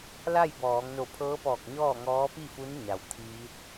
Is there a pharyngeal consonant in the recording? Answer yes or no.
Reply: no